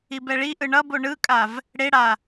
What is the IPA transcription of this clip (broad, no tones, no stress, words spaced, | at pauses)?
ibɛɭiʔɯ ɳʌbo ɳɯkʼav | ɽeɽa